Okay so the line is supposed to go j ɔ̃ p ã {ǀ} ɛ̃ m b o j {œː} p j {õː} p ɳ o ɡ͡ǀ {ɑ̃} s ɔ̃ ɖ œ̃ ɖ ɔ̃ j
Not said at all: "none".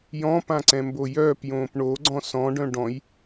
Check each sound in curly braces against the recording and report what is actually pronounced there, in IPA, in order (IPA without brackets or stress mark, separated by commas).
ǀ, œː, õː, ɔ̃